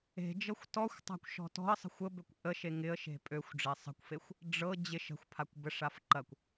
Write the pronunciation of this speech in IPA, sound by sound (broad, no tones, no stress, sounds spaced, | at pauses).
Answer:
e̤ d͡ʒ ɤ xʷ t ɔ xʷ tˤ a̤ kʷ ʃ ɔ̤ t ɔ̤ ə̯ sˤ ə̤ xʷ ə b ø kʷ ʔ ə ʃ e ŋ ɪ ə̯ ʃ e̤ pʼ ø xʷ ɖ͡ʐ e sˤ ə̤ kʷ f e xʷ | ɖ͡ʐ ɤ d͡ʑ ɪ ʃ ə̤ xʷ pʰ a kʷ b ə ʂ a f ǃ ɐ kʷ